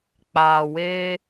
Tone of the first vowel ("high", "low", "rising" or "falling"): low